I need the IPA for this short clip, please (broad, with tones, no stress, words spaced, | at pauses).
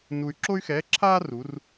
nu˧y̯ ǁo˥y̯xɛː˧˥ǁʰaː˥ ru˩˧r